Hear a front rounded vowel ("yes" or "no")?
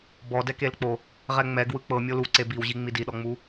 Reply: no